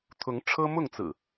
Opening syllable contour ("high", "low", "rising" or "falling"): rising